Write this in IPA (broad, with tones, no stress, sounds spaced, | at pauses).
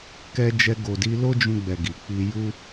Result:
k ɛ˧ d͡ʒ ɛ˧ ɡ o˨ d i˧ l o˦ d͡ʒ ũ˧ ɡ͡b ɛ˨ ɡ i˨ k͡p i˧ j u˦